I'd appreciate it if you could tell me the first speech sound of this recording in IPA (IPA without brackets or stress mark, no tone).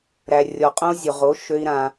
ɾ